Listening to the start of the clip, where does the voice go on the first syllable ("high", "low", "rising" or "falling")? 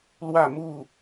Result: falling